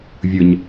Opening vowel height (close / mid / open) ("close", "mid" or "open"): close